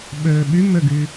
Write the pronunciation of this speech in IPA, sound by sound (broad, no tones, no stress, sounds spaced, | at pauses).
ɓ ø ɓ y m ø ɡ y